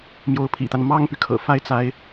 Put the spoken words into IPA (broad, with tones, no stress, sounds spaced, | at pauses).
m j o˧˥ ʊ̯ pʰ ḭ˨˩ t̪ a˦ n m ɑ˥ ŋ p y˨ kʰ ɤ̰˨˩ f a˥˩ ɪ̯ t͡s a˧˥ ɪ̯